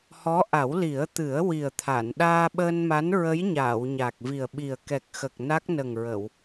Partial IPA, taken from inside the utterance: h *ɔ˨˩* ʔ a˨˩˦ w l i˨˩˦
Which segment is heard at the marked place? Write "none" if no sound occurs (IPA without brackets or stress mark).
ɔ˧˥